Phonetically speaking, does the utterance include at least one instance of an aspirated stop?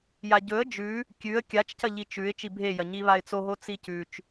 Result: no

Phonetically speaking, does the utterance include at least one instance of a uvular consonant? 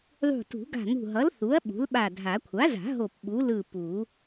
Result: no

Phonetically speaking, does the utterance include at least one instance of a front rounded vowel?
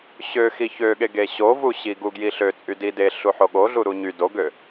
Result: yes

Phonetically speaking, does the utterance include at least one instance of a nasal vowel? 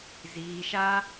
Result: no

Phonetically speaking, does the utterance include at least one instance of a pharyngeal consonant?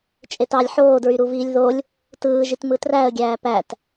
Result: yes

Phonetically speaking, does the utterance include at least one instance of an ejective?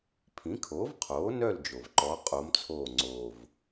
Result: yes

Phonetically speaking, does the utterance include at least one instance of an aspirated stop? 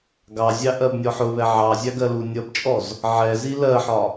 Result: no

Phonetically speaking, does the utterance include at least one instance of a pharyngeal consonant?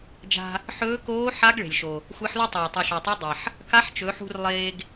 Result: yes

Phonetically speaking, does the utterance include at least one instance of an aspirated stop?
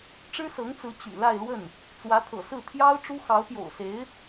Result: yes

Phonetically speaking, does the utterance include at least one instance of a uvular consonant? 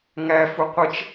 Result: yes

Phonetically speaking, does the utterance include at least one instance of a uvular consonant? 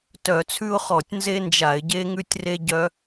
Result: yes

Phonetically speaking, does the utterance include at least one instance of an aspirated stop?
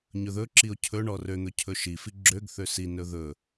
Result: yes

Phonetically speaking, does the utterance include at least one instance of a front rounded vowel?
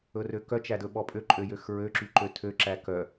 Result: yes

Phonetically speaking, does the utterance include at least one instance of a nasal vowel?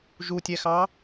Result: no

